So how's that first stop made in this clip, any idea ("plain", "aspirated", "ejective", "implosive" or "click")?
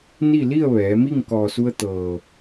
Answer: plain